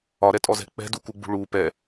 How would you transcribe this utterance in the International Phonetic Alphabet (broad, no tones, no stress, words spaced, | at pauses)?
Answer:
ɒɾɛtʼɔzɛ̤ k͡pɛ̤dukuɡ͡bṳ ɭu pɛ